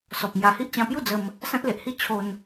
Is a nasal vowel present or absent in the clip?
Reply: present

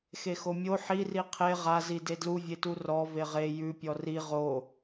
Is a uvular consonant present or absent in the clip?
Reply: present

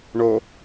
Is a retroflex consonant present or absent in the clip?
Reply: present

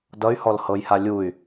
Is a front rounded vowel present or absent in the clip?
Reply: present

